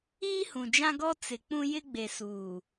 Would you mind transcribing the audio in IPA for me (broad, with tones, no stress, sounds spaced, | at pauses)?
iː˦ h ũ˨ d͡ʒ ã˦ ɡ ɔ˦ t͡s ɪ˨ k͡p ũ˦ j ɪ˦ ɡ͡b e˨ s uː˨